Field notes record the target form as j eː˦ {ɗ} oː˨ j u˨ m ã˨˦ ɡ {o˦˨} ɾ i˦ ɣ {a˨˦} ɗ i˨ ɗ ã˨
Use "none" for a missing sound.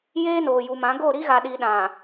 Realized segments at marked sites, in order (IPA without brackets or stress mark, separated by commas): n, o˦˨, a˨